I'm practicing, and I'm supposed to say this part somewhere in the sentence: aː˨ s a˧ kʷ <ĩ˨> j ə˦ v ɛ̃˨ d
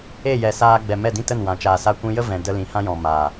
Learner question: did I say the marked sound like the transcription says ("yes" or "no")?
no